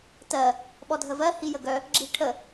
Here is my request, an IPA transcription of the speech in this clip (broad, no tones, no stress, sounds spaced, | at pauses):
t ɜ | ɓ ɔ dʱ ə v ɜ h i j ə ɡ œ | ɡ͡ǁ i ʈʰ ə